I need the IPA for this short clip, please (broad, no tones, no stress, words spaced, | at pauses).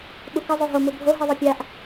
ɓukə zˤoɦo mubʱo ɦiðˤʌpʲaʔ